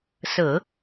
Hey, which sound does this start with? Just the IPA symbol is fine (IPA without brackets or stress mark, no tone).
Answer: s